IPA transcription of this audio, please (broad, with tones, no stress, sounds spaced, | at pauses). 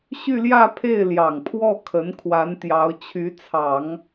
ɕ y˥˧ l j ä˥˧ pʰ e˥˩ ɪ̯ l j ɑ˨˩ ŋ pʰ w ɔ˥˩ kʰ ə˧˥ n kʰ w a˧˥ n t̪ j ɑ˧˥ ʊ̯ t͡ɕʰ y˧˥ t͡sʰ ɑ˨˩˦ ŋ